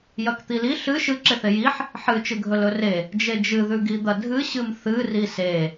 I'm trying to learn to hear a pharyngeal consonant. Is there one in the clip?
yes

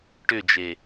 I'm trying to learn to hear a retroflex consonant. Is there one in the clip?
yes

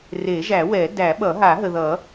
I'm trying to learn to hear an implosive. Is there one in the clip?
yes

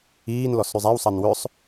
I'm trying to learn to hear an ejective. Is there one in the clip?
no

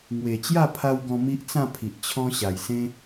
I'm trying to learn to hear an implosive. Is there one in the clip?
no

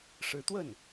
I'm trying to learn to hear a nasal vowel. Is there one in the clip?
no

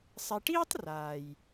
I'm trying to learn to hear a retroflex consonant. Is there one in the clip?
yes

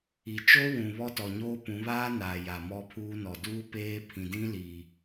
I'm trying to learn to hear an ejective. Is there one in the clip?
no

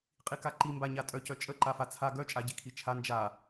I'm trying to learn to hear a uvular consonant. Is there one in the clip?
yes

